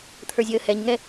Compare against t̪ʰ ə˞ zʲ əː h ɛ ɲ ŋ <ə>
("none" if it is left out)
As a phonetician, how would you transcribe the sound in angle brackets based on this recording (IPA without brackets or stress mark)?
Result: ɛ